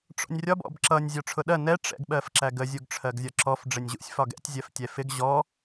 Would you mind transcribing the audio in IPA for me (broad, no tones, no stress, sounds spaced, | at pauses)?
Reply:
ʈ͡ʂ ɔ̰ nʲ rʲ ɒ b ɔ̰ b ǁ ʌ nʲ zʲ ɒ ʈ͡ʂʰ ʊ ɗ ɜ n ɛ ʈ͡ʂ ɛ̰ ɡ ɓ ɜ f ǁ æ ɡ ə zʲ u ɡ ʈ͡ʂʰ ɜ ɡ zʲ ɒ ǁ ɔ f ɖ͡ʐ ɪ nʲ ʑ ṵ sʲ f ɒ ɡ ɛ̰ tʲ zʲ ɜ f tʲ ɛ f ɪ ɡ ʑ ɔ